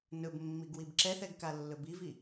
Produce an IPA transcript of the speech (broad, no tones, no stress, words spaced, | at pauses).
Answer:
nɵbmːiɡwib ǁɛθɛɡkalːɵ bivi